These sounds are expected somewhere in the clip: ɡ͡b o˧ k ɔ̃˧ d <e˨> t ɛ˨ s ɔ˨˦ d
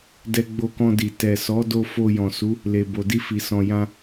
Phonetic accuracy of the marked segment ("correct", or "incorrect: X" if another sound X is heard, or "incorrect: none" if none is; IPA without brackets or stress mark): incorrect: i˨